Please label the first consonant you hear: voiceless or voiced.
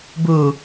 voiced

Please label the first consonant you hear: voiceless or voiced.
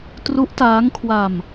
voiceless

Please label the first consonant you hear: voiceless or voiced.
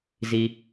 voiced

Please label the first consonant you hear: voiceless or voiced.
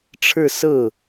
voiceless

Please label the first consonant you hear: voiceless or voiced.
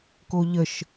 voiceless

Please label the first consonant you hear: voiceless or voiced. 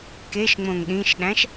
voiceless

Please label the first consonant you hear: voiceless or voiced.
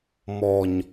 voiced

